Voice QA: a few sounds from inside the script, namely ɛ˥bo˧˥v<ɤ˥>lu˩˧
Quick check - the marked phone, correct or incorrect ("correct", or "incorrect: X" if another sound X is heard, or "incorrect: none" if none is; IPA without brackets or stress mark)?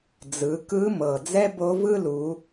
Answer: incorrect: ɯ˥